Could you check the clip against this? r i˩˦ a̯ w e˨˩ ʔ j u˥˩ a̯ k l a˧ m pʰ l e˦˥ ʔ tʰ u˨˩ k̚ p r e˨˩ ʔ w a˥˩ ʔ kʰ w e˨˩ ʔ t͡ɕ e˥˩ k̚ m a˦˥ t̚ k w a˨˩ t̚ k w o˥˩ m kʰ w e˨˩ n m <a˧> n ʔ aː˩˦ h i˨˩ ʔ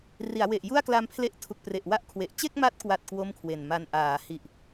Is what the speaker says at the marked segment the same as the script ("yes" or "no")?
yes